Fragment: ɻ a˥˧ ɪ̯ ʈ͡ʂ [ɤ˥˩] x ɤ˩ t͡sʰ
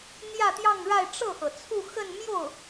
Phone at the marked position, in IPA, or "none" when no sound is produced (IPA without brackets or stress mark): ɤ˥˩